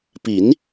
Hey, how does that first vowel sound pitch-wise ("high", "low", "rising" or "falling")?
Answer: rising